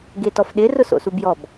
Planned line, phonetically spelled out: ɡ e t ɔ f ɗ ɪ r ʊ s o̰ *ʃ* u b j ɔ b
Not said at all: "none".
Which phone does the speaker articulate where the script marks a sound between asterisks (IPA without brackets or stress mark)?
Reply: s